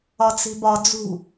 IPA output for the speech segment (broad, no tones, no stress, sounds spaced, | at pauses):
ɒ t͡s i̤ b ɒ d͡z ṳ